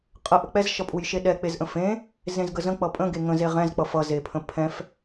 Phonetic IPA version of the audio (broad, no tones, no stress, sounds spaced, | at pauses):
qʼ ə ʔ ə k͡p ɛ z ʃ ʌ pʼ u j ʃ e ɗ ɛ k͡p e z ʔ ə̃ f ẽ | z ẽ z ɡ ə z ə̃ k͡p ʌ pʼ ə̃ ɡ e ŋ ə̃ z e ʁ ɛ̃ z k͡p ʌ f ʌ z e pʰ ə̃ pʰ ɛ̃ f